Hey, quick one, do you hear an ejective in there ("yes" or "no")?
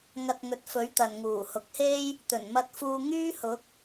no